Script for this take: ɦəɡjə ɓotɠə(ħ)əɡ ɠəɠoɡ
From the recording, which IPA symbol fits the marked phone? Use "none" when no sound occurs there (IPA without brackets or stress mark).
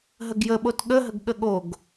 ɦ